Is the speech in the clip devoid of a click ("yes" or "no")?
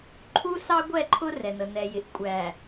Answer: no